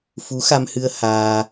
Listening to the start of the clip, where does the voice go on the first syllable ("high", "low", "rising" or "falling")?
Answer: rising